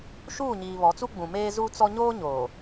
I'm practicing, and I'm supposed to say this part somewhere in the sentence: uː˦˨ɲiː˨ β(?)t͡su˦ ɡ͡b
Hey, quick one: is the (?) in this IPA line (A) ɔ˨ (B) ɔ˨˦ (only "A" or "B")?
B